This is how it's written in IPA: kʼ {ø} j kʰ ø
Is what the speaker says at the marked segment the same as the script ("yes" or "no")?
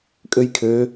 yes